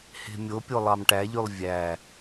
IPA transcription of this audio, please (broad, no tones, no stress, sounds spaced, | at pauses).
h e̤ mʲ o pʲ o lˠ ɑ m ʈ æ ʎ y lˠ vʲ æ